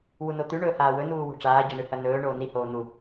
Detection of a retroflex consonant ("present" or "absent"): present